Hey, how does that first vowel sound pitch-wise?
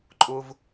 high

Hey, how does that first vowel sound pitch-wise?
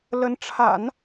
rising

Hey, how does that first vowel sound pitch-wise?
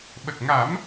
low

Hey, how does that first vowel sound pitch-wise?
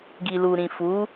low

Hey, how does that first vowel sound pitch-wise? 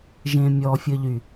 low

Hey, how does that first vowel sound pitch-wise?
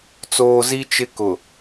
low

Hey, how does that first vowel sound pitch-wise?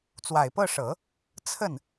low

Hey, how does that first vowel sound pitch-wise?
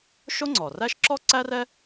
high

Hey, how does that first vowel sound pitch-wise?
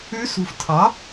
rising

